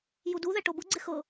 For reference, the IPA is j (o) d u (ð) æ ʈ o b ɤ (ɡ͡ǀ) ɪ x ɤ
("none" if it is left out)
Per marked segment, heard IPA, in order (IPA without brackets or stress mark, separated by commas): u, ð, ɡ͡ǀ